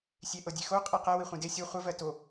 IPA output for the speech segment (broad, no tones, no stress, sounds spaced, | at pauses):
sʲ e ʔ ɤ dʲ e x o qʼ i q ɛ w i χʷ ĩ d e sʲ o χʷ ɐ v ɜ t o